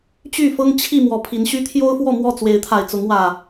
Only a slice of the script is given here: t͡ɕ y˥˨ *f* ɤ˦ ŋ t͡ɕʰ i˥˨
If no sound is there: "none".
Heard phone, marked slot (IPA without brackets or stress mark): f